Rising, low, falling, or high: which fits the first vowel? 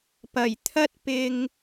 low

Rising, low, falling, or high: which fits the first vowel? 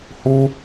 high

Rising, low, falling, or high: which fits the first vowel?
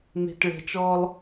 low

